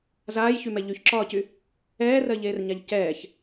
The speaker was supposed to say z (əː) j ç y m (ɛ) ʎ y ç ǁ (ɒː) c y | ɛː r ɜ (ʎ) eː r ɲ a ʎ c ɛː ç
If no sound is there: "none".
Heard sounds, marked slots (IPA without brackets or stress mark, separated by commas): aː, ɛ, ɒː, ʎ